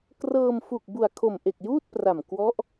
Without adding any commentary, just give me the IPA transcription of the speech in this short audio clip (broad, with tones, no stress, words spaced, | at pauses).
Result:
krɤː˧m fu˨˩k̚bu˨˩a̯kʰo˨˩mʔe˨˩k̚ juː˥˩t̚pra˨˩m kwɔ˦˥ʔ